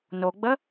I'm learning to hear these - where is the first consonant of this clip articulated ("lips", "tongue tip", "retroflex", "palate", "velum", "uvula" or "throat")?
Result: tongue tip